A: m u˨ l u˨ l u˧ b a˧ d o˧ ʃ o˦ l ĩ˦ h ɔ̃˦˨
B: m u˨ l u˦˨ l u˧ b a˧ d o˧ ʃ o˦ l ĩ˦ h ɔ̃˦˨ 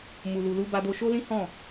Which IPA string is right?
A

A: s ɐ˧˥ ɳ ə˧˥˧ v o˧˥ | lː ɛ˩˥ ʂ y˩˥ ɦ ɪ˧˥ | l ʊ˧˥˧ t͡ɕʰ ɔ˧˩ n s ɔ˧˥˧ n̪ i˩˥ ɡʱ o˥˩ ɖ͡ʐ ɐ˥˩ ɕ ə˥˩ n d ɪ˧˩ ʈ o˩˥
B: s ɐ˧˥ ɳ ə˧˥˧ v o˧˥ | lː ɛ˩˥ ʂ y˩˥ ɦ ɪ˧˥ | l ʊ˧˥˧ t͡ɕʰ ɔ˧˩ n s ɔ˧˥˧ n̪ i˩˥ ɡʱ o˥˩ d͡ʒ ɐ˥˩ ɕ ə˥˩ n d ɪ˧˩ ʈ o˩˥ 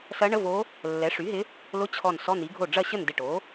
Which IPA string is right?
A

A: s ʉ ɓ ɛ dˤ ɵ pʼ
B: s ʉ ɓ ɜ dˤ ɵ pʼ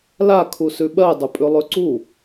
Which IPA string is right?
B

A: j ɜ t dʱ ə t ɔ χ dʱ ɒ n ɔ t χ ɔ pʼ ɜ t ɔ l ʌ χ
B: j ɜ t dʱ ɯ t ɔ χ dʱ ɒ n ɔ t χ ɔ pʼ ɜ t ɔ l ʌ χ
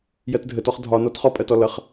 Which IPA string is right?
A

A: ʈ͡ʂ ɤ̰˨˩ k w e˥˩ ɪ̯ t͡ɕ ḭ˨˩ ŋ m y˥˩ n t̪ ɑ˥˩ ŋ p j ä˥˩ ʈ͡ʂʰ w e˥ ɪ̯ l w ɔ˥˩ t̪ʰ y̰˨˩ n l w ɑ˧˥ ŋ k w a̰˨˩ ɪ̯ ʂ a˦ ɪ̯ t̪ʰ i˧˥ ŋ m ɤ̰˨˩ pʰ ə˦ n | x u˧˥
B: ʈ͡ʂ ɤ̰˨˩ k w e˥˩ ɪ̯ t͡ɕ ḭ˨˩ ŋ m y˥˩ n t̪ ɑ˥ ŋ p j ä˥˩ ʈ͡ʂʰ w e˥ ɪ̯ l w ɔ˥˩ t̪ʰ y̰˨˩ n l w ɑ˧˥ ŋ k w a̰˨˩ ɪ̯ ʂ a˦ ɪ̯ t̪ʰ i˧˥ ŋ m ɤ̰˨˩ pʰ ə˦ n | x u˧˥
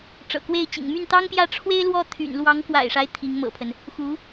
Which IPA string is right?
B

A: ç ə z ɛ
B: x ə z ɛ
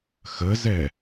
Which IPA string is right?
B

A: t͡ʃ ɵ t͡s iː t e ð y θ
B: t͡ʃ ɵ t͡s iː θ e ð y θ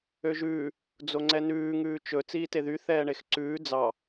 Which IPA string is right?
A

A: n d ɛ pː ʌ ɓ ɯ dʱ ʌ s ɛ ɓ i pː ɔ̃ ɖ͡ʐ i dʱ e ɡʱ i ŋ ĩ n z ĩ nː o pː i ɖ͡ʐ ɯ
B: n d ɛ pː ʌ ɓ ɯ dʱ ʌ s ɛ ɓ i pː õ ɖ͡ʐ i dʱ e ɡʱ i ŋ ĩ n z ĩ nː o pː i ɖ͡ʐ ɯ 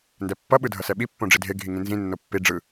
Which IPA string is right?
B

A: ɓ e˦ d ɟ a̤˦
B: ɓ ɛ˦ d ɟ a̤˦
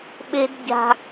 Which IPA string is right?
A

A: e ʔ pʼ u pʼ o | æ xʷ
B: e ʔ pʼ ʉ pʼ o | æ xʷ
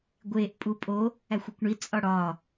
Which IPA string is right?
A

